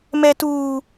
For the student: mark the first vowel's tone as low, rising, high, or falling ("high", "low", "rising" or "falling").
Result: high